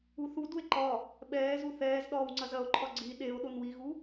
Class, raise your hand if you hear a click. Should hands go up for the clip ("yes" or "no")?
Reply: yes